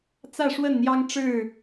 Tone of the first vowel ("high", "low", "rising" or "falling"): falling